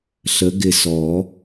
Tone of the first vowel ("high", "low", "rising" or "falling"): rising